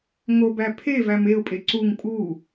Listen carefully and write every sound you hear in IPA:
ŋ o b æ pʰ e v æ m e ʊ̯ pʼ e ǀ u ŋ pʼ u

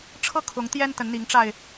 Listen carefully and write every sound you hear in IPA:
ʈ͡ʂʰ ɤ˥˨ kʰ ʊ˨˦ ŋ t̪ j ɛ˦ n t̪ ə˨˦ n n̪ i˨˦ ŋ ʈ͡ʂ a˧ ɪ̯

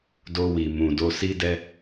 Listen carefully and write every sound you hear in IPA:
d o˧ w i˨ m ũ˨ d o˧ s i˦ d ɛ˦

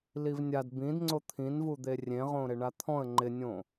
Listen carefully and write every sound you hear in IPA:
l i v nʲ a d b ĩ d ŋ͡ǀ o t̪ʰ ĩ n v u d̪ e rʲ ẽ ʁ õ ɾ ɪ ɳ a t̪ʰ ɔ̃ ə̯ ŋ͡ǃ ɪ nʲ õ

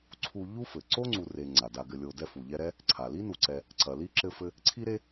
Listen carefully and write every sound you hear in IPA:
ǀʰ u˦ ʎ u˦ f ɘ˩ ǀ o˥ ŋ͡ǀ u˨ r e˨ ŋ͡ǀ a˩ d a˨ ɡ ɘ˨ lʲ o˨ d ɛ˦ f u˩ ʎ ɛ˦ ɾ ɛ˥ | ǀʰ a˩ l i˥ n u˨ ǀ ɛ˨ | ǀ ɐ˩ l i˥ ǁ ɘ˦ f ɘ˦ | ǀʰ i˥ ɾ e˥

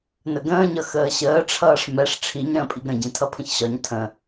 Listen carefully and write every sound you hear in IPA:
n ə ɡ ə̃ː ɲ ʌ x əː ɕ əː ʈ͡ʂʰ ʌː ʂ m ɛ ʂ ʈ͡ʂʰ i ɲ ɾ ə̃ː pʼ i ɡ ɾ ə̃ ɟ ĩ tʰ ʌ pʰ ə̃ ç ɕ ɒ ɲ tʰ ə̃

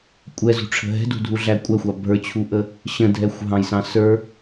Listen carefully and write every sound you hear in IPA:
kʷʼ ɛ z ṳ ʈ͡ʂʰ ə̤ ɦ ɛ̤ d ṳ dʱ u ɮ æ kʷʼ æ xʷ ɑ bʱ ə˞ t͡ɕʰ u ʔ ə | ɕ ə̃ dʱ ɛ xʷ ɦ ɑ̃ j s ɑ̃ s ə˞

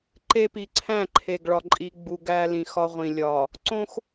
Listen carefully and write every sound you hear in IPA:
ǃ e˦ p i˨ ǀʰ æ̃˦˨ ǃʰ e˨ ɡ ɭ ɒ˨ ǃʼ i˨ ɡ͡b u˨ ɡ æ˦ l ĩ˨ x ɒ˦ ʁʷ ĩ˨ lʲ ɒ˨ | ǀ õ˦ x

